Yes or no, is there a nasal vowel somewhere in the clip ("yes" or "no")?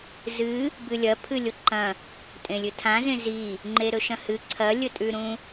yes